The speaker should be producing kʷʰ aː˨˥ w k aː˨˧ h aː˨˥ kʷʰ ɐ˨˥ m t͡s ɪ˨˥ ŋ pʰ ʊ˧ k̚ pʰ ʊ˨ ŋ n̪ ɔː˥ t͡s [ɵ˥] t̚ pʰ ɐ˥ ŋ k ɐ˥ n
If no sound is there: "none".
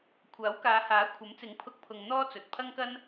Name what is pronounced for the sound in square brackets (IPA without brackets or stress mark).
ɵ˨